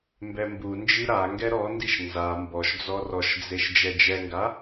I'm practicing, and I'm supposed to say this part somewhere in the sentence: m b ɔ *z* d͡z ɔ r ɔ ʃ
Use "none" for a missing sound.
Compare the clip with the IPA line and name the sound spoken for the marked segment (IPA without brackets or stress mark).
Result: ʃ